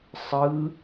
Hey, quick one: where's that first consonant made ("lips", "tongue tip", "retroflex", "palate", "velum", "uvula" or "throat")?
tongue tip